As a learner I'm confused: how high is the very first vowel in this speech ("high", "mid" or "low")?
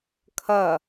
low